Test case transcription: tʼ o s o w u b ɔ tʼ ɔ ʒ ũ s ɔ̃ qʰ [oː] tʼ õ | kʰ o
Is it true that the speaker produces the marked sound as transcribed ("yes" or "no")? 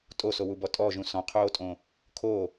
yes